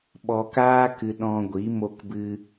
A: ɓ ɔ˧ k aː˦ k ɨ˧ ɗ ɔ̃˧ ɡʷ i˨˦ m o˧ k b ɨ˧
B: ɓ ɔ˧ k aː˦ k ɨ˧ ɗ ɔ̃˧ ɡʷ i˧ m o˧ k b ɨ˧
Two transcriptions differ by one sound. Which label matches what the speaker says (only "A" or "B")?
A